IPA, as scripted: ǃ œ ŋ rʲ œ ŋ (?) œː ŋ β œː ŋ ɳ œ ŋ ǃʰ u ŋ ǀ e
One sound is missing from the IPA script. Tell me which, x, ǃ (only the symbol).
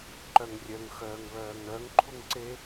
x